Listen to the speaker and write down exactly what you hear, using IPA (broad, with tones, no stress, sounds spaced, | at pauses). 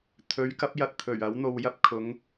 t̪ʰ ɵ˨˥ ɥ k ɐ˨˥ p̚ j ɐ˨ t̚ t̪ʰ ɵ˨˩ ɥ ɐ˨˥ w n̪ o˨ w j ɐ˧ p̚ kʰ ʊ˨˧ ŋ